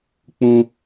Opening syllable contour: high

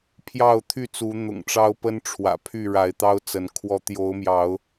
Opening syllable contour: falling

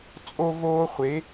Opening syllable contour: high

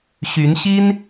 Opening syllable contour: rising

